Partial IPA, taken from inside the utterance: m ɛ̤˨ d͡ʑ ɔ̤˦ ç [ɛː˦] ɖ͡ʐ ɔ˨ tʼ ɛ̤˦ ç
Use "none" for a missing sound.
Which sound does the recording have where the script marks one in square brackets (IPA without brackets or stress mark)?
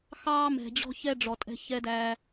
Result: ɛ˦